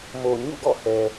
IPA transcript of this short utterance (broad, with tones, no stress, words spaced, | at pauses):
mo˨ ɲṵ˦˨ɡɔ̰˦˨hɛ˨